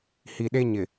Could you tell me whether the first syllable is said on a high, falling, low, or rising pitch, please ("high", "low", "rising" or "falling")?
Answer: low